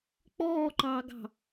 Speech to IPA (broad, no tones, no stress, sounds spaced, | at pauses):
k͡p ɔː ǃ ɑː ɡ ɑ̤